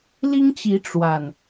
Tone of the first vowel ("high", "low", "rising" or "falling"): high